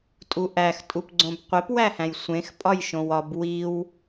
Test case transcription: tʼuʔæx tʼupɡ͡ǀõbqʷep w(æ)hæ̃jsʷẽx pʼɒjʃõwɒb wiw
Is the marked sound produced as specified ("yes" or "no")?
yes